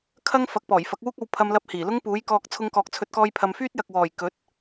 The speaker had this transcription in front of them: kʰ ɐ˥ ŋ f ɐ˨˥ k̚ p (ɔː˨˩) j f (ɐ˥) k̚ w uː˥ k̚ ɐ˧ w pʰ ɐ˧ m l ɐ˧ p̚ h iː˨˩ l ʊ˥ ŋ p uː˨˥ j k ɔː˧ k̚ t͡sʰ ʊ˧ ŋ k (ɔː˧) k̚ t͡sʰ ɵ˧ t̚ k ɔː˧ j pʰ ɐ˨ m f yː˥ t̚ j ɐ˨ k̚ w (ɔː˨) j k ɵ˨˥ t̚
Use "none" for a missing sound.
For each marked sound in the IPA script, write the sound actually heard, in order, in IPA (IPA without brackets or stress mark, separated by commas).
ɔː˨˩, ɐ˨˥, ɔː˨, ɔː˨˩